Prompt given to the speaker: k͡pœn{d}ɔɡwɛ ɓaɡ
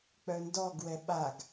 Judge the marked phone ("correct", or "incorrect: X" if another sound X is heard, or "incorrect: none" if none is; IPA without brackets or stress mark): correct